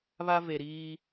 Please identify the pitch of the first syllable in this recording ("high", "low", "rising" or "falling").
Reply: high